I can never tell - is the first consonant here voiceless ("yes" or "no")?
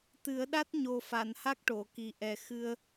yes